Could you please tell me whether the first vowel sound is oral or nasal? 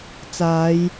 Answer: oral